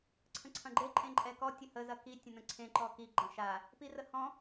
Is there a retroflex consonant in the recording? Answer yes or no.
no